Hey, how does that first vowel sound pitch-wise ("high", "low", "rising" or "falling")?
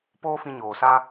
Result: high